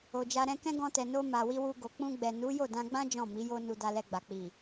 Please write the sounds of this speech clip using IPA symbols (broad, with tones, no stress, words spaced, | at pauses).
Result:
o˨d͡ʒa˧ ɾɛ̃˧kɛ̃˦ ɡɔ̃˧tɛ˨no˧ ma˨ wi˧wu˧ɡo˨ k͡pũ˧ɡ͡bɛ˨nu˨˦ jo˦˨dã˧ɡ͡bã˦ d͡ʒɔ̃˦˨mi˨˦jo˦ nu˧da˧lɛ˧ɡ͡ba˨ k͡pi˨